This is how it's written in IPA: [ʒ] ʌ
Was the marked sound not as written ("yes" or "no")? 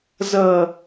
yes